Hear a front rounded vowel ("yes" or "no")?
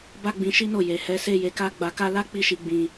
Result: no